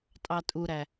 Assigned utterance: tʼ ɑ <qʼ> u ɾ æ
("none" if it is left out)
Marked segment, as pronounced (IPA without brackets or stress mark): tʼ